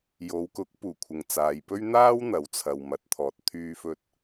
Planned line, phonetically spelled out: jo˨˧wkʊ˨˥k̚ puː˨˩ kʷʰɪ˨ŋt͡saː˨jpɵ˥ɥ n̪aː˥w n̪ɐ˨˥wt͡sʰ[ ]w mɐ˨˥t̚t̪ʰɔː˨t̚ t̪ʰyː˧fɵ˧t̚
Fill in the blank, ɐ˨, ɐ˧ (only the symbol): ɐ˨